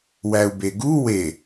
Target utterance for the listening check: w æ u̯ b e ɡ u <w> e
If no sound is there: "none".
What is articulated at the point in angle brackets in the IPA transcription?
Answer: w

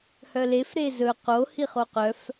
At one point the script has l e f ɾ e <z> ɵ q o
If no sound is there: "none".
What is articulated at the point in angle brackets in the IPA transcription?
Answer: z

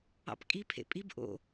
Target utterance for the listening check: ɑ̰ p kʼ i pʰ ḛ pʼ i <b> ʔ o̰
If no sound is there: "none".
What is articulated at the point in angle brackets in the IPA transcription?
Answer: b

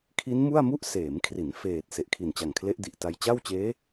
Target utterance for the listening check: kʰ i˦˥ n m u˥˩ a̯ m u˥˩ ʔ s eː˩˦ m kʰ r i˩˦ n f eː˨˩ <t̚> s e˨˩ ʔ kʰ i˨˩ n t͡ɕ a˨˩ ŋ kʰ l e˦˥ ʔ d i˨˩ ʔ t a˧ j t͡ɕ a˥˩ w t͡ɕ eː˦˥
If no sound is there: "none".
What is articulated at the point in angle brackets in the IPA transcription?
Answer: t̚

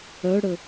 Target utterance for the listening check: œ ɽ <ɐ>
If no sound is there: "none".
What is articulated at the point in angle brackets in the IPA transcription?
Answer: ə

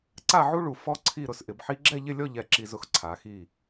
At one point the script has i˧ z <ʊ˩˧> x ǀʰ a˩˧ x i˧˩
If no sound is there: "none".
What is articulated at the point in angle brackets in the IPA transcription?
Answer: ʊ˧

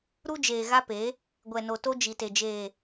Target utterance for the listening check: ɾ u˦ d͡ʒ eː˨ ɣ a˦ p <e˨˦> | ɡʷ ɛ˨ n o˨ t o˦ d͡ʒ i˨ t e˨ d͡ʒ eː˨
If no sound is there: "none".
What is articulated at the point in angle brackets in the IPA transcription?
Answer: e˨˦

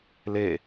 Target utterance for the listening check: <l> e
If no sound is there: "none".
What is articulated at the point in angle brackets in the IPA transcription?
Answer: l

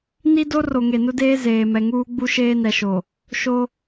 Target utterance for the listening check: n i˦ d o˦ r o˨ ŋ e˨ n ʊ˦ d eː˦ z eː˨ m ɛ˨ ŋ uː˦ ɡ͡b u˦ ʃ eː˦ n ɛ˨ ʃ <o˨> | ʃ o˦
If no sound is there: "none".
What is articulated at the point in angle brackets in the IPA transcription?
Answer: o˨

